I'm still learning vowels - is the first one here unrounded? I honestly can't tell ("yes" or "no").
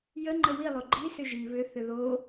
yes